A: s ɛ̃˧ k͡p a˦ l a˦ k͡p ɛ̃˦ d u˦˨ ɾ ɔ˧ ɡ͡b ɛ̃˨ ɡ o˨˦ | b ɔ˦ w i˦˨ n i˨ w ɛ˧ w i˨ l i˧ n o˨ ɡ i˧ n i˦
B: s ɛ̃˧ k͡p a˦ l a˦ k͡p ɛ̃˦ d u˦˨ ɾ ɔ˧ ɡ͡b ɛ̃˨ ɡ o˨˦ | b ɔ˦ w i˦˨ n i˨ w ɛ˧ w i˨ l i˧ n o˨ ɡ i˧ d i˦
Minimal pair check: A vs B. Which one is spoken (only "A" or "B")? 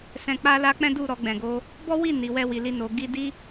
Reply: B